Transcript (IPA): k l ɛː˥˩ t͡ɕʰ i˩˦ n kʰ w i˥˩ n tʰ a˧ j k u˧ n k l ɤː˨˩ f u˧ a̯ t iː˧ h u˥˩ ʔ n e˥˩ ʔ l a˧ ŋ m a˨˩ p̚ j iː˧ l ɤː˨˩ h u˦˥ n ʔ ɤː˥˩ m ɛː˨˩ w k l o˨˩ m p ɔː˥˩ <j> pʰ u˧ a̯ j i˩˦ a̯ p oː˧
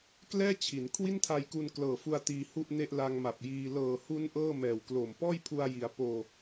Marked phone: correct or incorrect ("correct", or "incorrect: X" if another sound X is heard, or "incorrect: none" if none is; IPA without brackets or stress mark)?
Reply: correct